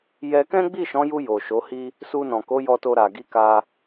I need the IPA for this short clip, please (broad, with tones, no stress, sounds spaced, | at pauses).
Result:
j ɛ˧ k ɛ̃˦ ɡ͡b i˦˨ ʃ ɔ̃˨˦ j u˧ j o˨ ʃ o˨˦ h i˦ | s u˧ n ɔ̃˨ k o˨˦ j ɔ˧ t o˧ ɾ a˨ ɡ i˨˦ k a˧